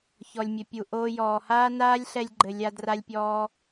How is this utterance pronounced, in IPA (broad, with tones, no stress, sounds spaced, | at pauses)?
ç ɔ˨ lʲ mʲ ɘ˨ pʲ u˨ ʔ oː˧ j ɔː˨ h aː˦ n aː˦ lʲ ɬ ɛ˧ lʲ ɡ͡ǃ ɘ˨ lʲ a˧ d r a˧ lʲ pʲ ɔː˧